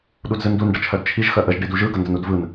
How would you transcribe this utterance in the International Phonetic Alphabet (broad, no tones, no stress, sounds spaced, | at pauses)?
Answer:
ɗ u d z ɯ n d u n ɖ ə t͡ʃʰ œ d t͡ʃʰ i ʒ x œ ʔ ə ʒ ɖ i d u ʒ ɯ ɡ ə n d ə n u d v ɯ n